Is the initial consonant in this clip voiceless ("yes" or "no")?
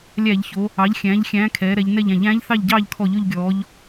no